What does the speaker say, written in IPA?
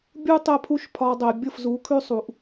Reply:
bʲu˦ tˤɛ˦pʰu˦ʃpʰɒ˧dˤɛ˨ bʲɤ˦˨fzu˨˦ kʰʉ˦sˤu˨ʔ

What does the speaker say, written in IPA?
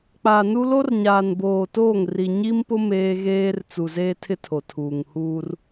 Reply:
k͡paː˨nu˦ lo˦rɲaː˨nboː˨toː˦˨ŋ ri˨ɲi˦mpʊ˦ meː˦ɣeː˦r t͡su˨zeː˦tʰɪ˦ tʰo˨tʰuː˨ŋ huː˦r

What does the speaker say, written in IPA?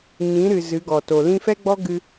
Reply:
ɲĩ˨˦ɾɨ˨ zɨ˨˦ɡɔ˨to˨ lĩ˧fɛ˦ɡ͡bɔ˦ ɡɨ˧

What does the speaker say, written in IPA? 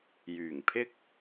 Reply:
jyː˨˩ŋpʰɪ˥k̚

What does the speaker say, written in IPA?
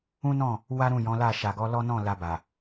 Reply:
ũ˦nɔ̃˦˨ | wa˦ ɾũ˦˨jɔ̃˨˦la˦˨ ʃa˨ɡɔ˨˦lɔ˦nɔ̃˦˨ la˧ba˨

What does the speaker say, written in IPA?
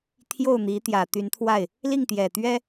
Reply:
t̪ʰjo˥˩ʊ̯n̪i˧˥ t̪jä˨˩t̪y˧˥nt̪ʰwa˥˩ɪ̯ | li˥˩ŋt̪jɛ˨˩t̪ɥɛ˥

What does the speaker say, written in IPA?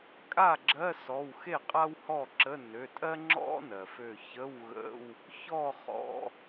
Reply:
kʼa˥˩ɡ͡ǁɜ˧˥˧ sɔ˩˧˩wxe˥˩ qʼa˥whɔ˥˩ǁə˧˥˧ nø˩˧˩tʼɜ˥ ŋ͡ǁɔ̰˥nɜ˩fø˧˩çə˧˥˧w ɣə̰˧˥˧w | çɔ˥˩ χɔ̰˩˧˩

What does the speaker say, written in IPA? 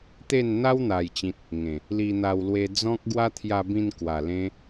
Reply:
t̪e˥˧nn̪a˦wn̪a˨˩jt͡ɕĩ˨t̚ | ŋẽ˨˩ | li˧n̪a˧w lwe˧d͡zɔ̃˦k̚ɡwa˦ t̪ʰja˧bĩ˧nkwa˨˩lẽ˧

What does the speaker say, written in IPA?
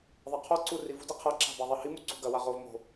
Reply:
ðˤaqʰɔǀu rivṳdi qʰɐǁa̤ baðˤahimu ǀṳɡɐwa ʁov mo̤

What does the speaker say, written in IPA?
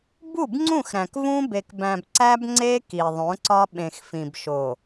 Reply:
bu˦˨bŋ͡ǀũ˦˨xɾæ̃˨k vũ˦ be˨kbæ̃˨b ǀæ˦bŋ͡ǀe˦ ki˨ðˤõ˨˦ǀɒ˦ ɓẽ˨xfĩ˨bʃo˨

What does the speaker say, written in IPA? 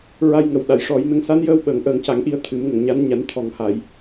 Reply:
ɹa˧jŋə˨˩w ɗa˨˩˨jʂɔ˨˩˦jnə˧˥ŋ sa˧˥njəː˧w ɓəː˨˩ŋʔəː˨˩˦ŋca˨˩˦ŋ ʔi˨˩˦ə̯ t̪ʰɨ˨˩˦m ŋə˨˩˨ŋɲa˧˥nɲa˨˩˦n t̪ʰɔ˨˩ŋha˨˩˨j

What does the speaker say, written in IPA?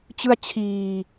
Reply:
t͡ɕɯ˥˩a̯t͡ɕʰiː˧

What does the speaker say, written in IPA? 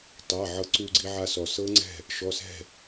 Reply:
tˤa˩˧˩ ʕɤ˧ǀu˧ɡ͡ǀi˧ ʕa˧sɔ˩ sɤ˦˥ŋ͡ǀɛ̤˥˩ | ʃɔ˩˧˩sɛ̤˥˩

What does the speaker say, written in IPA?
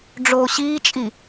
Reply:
ɖ͡ʐoːɕiːt͡ʃʼi

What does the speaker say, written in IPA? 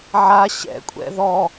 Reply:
ʕa ɕɛ̰kʷʼɛ̰ ðɔ

